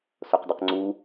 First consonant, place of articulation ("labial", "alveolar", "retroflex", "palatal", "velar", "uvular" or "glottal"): alveolar